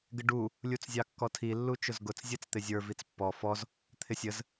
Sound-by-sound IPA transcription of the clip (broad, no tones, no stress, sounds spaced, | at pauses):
ɡ ɪ ɖ u | lʲ u t͡s zʲ ɑ kː ɔ tʰ i lː u t͡ʃ ʊ z ɡ ʊ t͡s zʲ ɛ t͡s t̪ ɪ zʲ ə˞ v i t͡s pː ɔ f ɔ z | t̪ʰ ɪ sʲ ə z